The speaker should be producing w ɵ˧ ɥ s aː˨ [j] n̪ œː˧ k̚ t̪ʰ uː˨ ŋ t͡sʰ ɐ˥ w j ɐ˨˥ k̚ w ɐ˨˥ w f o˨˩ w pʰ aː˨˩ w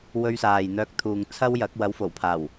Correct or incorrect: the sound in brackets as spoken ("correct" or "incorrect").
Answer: correct